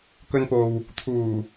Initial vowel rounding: rounded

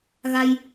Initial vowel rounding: unrounded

